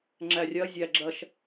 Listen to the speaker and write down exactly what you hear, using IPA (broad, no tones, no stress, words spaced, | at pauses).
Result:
ŋ͡ǁærʲɐ zʲæɡ͡ǁɐʃ